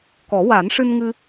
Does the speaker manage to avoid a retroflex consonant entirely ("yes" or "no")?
no